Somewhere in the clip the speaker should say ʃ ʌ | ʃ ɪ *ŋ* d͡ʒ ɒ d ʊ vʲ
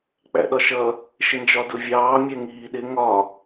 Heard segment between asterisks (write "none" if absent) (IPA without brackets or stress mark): n